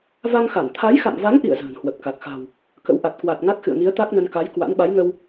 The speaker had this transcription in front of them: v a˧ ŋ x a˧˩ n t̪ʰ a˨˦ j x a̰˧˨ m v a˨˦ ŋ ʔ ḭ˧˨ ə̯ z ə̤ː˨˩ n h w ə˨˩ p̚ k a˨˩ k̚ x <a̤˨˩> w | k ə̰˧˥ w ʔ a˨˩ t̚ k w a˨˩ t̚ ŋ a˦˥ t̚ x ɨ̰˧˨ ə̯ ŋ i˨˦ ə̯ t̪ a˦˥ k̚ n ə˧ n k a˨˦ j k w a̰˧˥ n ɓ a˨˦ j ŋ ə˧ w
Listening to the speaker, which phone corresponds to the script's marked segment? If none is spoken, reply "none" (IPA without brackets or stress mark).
a̤˨˩